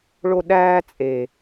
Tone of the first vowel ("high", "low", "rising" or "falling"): high